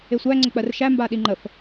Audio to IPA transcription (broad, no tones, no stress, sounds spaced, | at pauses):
e sʷ æ ŋ͡ǀ ə k͡p ɜ r ʃ æ m b a ɗ i ŋ͡ǃ ə f